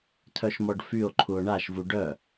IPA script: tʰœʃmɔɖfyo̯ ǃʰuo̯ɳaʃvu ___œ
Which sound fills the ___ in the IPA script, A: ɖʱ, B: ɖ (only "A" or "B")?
B